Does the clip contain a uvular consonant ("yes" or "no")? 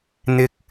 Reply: no